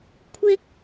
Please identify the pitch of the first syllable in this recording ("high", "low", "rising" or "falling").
high